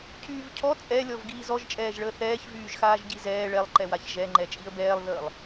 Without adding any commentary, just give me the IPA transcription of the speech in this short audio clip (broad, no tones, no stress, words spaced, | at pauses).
cʰyːvcʰɔ t͡sʼɛlʲɔv ɡiːzɔʒt͡ʃʼɛːʒɭəː θɛːçvyːʒxaːʒ ɟizɛː ɭɛlˠǃɛ waçʒɛŋ͡ǃɛ t͡ʃʼiə̯bɛːlˠðəːlˠ